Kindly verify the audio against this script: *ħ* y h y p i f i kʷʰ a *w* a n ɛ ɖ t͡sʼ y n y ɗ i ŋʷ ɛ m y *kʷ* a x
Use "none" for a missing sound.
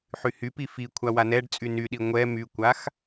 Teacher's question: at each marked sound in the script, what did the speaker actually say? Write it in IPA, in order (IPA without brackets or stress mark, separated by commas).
ħ, w, kʷ